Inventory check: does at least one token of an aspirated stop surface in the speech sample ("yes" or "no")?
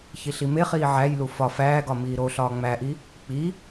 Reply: no